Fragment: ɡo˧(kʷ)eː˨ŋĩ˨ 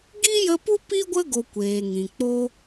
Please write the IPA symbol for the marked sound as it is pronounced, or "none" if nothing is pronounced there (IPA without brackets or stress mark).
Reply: kʷ